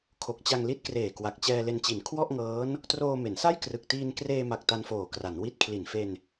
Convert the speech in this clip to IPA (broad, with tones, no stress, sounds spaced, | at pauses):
kʰ o˨˩ k̚ t͡ɕ a˧ ŋ l i˦˥ t̚ k r eː˨˩ k w a˨˩ k̚ t͡ɕ ɛː˧ l e˧ n t͡ɕ i˨˩ n kʰ w ɔ˥˩ ʔ ŋ ɤː˦˥ n | t r oː˧ m e˩˦ n s a˥˩ j k r ɯ˨˩ k̚ t iː˧ n k r eː˧ m a˨˩ k̚ t a˧ n f oː˨˩ k r a˩˦ n w i˦˥ t̚ kʰ l i˨˩ n f e˧ n